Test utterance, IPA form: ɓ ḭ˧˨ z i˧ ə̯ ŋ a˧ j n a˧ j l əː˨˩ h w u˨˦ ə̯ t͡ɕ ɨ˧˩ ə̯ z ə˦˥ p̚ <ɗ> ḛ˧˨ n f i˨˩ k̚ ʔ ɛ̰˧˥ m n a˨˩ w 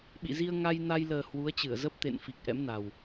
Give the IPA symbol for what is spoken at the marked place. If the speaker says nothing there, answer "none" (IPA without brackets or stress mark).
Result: t̪